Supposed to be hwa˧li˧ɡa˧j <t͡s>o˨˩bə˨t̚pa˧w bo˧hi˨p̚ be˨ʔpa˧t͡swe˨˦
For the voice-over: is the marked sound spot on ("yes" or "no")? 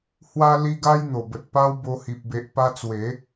no